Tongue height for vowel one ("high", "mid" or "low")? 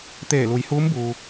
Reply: mid